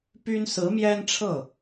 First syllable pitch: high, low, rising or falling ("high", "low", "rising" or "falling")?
high